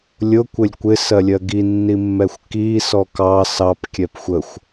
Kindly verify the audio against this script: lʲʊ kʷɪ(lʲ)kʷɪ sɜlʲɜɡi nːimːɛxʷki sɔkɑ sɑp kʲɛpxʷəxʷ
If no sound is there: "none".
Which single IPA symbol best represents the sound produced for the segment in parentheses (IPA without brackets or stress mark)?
lʲ